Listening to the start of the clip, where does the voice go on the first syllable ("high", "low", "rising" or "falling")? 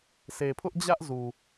low